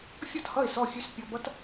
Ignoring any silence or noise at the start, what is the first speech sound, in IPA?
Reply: fʲ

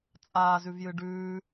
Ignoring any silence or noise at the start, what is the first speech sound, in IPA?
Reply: t͡sʼ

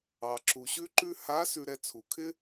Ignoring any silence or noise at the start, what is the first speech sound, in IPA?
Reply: ɑ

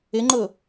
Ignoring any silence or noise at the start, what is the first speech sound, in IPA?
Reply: ɪ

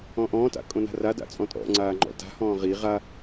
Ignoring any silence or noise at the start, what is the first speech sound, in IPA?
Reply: ɔ̃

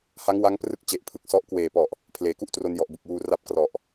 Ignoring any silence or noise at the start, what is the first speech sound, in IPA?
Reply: h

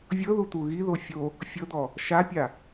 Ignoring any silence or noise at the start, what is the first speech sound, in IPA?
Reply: vʲ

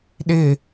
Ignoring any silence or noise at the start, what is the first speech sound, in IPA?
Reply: ɗ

